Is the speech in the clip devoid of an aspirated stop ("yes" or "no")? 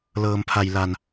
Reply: no